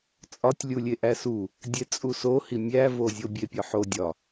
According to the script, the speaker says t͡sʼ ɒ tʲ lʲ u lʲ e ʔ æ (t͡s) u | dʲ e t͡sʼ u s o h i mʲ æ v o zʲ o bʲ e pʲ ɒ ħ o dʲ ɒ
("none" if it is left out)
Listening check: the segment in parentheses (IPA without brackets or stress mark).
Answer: s